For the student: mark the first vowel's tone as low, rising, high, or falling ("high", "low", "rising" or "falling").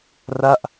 falling